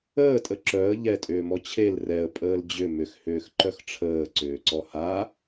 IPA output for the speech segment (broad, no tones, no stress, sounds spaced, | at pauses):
əː tʼ ə ǁ œ ə̯ ʎ ɛ tʼ ʏː m ɔ t͡ɕʰ e l r ɛ ə̯ pʼ əː l d͡ʑ ʏ m ʏ x h ʏː x ǃ œ x ʈ͡ʂʰ əː ǀ ʏː ǀ ɔ h a